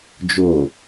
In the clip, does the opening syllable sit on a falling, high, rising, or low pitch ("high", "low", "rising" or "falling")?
low